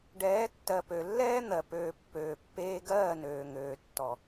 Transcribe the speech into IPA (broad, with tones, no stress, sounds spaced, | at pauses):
ɖ ɛː˨˦ tː ɜ˨ p ø˨ lː ɛː˦ n̪ ɜ˨ p øː˨ pː øː˨ pː eː˧ ɡ ɜː˦˨ n øː˨ ŋ øː˨ tː ɔ˨